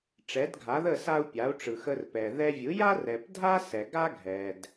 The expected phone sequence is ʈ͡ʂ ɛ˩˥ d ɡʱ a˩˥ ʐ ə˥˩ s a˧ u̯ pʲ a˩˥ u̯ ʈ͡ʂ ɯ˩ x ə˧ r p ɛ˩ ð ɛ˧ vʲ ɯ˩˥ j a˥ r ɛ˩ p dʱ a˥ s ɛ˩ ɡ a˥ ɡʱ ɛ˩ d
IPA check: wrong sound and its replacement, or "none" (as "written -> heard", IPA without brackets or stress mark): ʐ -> ð